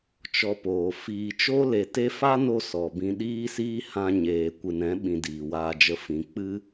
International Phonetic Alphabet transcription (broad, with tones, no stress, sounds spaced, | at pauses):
t͡ʃ ɔ˧ p oː˨ f iː˨ t͡ʃ o˦ l e˨ t e˧ f a˦ n o˧ s ɔ˨ b ĩ˧ ɗ iː˦ s iː˦ h ã˧ ɲ eː˨ kʷ ɨ˨ n ɛ̃˨˦ ɓ ĩ˨ d iː˨ w aː˧ d͡ʒ ə˧ f ĩ˨ k͡p ɨ˦